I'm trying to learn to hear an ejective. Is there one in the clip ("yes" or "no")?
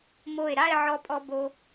yes